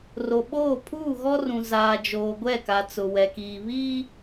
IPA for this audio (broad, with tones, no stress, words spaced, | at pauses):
ro˨ɓoː˦˨ pʰuː˦˨ɣɔ˦rũ˨ zaː˨d͡ʒoː˨ ɡʷɛ˦˨ka˨t͡sʊ˨ wɛ˨kiː˨ βiː˦